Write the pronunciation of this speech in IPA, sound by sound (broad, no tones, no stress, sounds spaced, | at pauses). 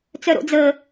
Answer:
t͡s œ ɾ o̰ d͡z ə